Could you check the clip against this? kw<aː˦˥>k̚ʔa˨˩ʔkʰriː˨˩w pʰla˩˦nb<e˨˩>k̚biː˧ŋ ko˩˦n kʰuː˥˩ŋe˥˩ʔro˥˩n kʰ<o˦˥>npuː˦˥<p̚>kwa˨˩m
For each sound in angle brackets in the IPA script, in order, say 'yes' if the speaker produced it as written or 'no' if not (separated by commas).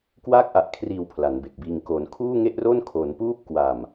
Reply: yes, yes, no, yes